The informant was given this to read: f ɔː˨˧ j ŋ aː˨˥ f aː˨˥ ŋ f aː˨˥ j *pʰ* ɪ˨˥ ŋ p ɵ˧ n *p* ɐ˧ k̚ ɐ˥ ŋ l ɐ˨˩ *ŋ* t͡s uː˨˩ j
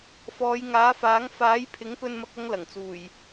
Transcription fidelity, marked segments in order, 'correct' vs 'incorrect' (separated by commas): correct, incorrect, correct